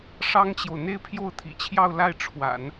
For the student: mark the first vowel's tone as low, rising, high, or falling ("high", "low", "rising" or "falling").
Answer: high